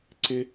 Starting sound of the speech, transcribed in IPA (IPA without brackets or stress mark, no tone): ǀ